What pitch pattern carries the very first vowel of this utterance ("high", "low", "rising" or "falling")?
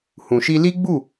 low